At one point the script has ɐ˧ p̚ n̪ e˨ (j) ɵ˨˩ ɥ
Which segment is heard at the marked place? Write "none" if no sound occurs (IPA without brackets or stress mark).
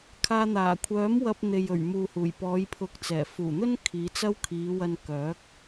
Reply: j